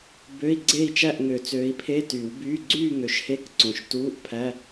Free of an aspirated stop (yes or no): no